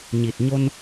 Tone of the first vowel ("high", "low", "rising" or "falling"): low